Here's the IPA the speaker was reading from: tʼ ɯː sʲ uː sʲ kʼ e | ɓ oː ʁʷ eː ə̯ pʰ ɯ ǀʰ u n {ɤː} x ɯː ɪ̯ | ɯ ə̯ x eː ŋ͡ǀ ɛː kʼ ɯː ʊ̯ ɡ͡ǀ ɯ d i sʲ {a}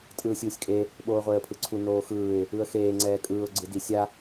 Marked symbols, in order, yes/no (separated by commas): no, yes